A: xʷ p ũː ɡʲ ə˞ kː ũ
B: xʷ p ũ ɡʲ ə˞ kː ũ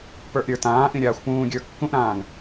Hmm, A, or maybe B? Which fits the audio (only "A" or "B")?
A